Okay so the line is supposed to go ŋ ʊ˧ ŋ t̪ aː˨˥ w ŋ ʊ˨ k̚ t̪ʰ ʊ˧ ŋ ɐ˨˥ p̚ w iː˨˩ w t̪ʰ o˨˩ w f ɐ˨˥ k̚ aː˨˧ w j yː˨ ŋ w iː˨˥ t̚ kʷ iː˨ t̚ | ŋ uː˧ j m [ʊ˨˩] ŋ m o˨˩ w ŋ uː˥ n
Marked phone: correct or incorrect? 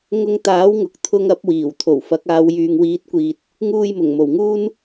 correct